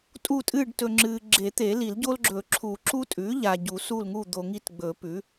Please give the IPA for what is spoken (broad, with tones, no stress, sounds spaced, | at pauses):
tʼ u˦˨ tʼ ɨː˦˨ ɖ t ɵ˨ ŋ͡ǁ ɨː˨ ɡ͡ǁ e˨˩˦ t̪ e˨˩˦ l i˨˩˦ l ɟ o˦ l ɡ͡ǁ ɵː˨˩˦ ǁʰ uː˨˩˦ ǁ u˦ tʼ ʉː˩˥ ʎ aː˨ ɟ u˨˩˦ s u˦˨ l ŋ u˦˨ d̪ o˨ ŋ i˦˨ t ɡ͡b ɵ˨˩˦ p ʉ˩˥